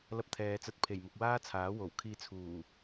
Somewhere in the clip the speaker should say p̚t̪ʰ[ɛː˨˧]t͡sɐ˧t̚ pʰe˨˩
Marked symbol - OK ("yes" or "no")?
yes